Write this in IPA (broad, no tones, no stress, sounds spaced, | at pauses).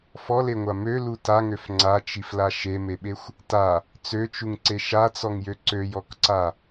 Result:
f ɔ l e ŋʷ a m ø l u t a ŋ ø f ŋ͡ǀ a t͡ʃ i f l a ʃ e m e ɓ e xʷ | t a | t͡s ø t͡ʃ u ŋ ǀ e ʃ a t͡s ɔ ŋ j ø ǀ ø j ɔ k ǀ a